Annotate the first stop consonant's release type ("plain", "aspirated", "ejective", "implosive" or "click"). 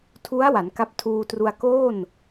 aspirated